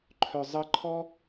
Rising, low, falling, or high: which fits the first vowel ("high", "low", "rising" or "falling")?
low